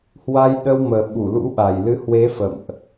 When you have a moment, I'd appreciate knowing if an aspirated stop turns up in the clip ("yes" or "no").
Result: no